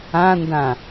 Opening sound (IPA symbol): ã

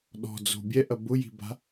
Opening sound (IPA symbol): ɗ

